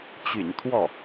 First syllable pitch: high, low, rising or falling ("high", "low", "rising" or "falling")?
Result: low